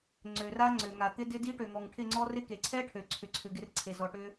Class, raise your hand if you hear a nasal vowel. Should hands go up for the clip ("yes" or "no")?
no